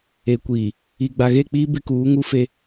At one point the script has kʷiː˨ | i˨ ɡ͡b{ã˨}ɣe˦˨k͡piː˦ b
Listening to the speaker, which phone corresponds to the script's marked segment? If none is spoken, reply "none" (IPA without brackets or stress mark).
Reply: a˨